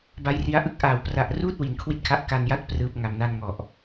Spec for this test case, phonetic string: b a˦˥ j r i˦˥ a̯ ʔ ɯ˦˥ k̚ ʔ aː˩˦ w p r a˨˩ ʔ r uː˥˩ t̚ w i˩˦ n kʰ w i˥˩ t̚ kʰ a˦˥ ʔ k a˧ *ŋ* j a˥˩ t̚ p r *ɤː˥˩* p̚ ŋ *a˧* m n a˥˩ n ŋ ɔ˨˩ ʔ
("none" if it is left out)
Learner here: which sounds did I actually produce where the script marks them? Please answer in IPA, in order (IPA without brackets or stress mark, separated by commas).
n, ɯː˥˩, a˧